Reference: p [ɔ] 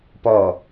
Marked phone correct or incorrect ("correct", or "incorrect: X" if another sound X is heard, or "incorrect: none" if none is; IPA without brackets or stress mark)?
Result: correct